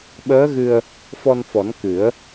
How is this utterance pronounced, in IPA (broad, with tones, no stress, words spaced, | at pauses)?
ɓəː˧˥ɣɨ˧ə̯ | fɔ˧nfɔ˨˩˦n kɨ˨˩˦ə̯